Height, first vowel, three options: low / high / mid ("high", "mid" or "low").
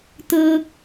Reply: mid